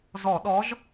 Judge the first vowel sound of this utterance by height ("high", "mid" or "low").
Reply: mid